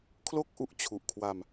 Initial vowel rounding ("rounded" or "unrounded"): rounded